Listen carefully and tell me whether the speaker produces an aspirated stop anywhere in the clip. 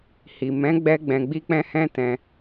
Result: no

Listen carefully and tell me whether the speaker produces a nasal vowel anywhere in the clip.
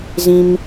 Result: yes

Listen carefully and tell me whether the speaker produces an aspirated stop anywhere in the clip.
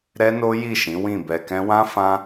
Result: no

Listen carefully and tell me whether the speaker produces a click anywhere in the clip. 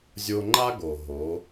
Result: yes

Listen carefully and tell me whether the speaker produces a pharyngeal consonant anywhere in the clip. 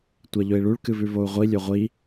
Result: no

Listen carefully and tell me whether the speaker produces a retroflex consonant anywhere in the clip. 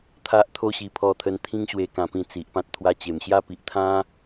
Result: no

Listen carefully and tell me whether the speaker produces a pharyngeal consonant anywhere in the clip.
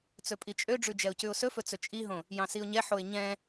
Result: yes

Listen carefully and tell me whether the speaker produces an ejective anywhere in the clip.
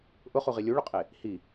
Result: yes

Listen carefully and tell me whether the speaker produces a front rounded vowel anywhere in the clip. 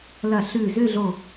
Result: yes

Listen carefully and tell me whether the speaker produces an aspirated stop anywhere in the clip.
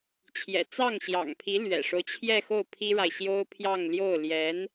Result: yes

